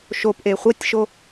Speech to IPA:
ʃopʔe χʷɐtʲʃo

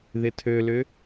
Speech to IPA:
ðɪtʰølʏ

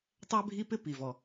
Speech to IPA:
tˤæ˥bʱi˥pɪ˥ pi˩vɔ˩

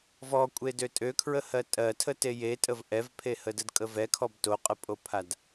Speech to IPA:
vɔkʷʼe døtʼøkʰɹəhɜ tʼɜtʰəte jetʼəv ʔɛvpʰehə dədkʼəvɛkʰɔb toqʼəpʼopʰad

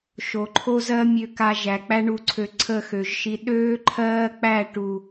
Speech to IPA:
ʃo˨ ǃʰo˦zɜ˦mʲø˧ka˧ ʒæ˨k͡pæ˦ɳu˧ ǀʰø˨ ǀʰə˦˨xø˨ʒʃi˧ ɗøː˦ ǃʰɜː˦k͡pæ˦˨ ʈu˨

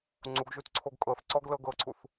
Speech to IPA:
ŋ͡ǀuɡʒutǀʰoɡ kʼɤθ ǀɔɡlɤɡɤǀʰuθ

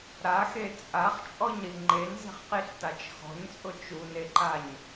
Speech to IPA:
ɾaxe t͡sʼaχt͡ʃʼɔɲɾi ŋ͡ǃenze̤χqiɬtat͡ʃ xɔ̤ɲt͡sʼʊ t͡ʃuneǃaɲ

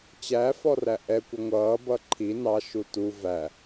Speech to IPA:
t͡ɕæfɔræ ʔɛkʷə ŋʷʌːbʌ ǃʰi nɑʃu tu væ

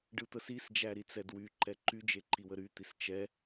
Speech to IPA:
ɖɯt̪əsisd͡ʒæ ɾit͡sɛdwyǃɛ ǃyd͡ʒe ǃiwəɾyt̪is t͡ʃɛ

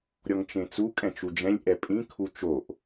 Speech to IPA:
ɾʲɔŋt͡ʃẽt͡su kʼɛ̃t͡ʃud͡ʒɛ̃lʲ ʔɛpʼĩ kʰut͡ʃoʔ

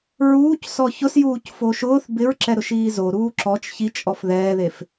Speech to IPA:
ɹuːc sɔçʊsjuːc foʃʊːθ bɪɹǁɛ ɾʊʃiːzo ɾuːǁɔt͡ʃ çit͡ʃʼɔf ðɛːðef

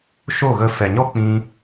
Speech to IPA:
ʃo˦˨ɣə˧ fɛ˨ɲɔ˦ k͡pĩ˧

